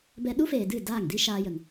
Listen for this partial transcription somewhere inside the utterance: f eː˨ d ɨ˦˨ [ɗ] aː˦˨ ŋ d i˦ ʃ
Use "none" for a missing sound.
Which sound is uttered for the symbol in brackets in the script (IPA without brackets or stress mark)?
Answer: d